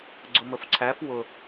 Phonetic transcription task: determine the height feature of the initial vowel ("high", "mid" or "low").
high